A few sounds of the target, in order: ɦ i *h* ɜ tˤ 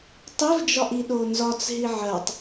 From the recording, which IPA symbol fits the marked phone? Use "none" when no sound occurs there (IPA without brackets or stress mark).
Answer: ʕ